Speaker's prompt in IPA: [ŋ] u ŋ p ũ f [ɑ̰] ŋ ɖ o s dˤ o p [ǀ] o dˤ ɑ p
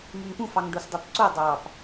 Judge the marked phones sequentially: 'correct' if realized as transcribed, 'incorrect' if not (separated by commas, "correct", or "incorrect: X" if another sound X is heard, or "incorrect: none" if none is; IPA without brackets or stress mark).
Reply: correct, incorrect: ɑ, correct